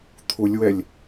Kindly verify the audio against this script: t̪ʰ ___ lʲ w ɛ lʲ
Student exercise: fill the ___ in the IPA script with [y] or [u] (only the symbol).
u